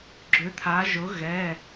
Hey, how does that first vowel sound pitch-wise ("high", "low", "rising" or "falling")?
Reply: rising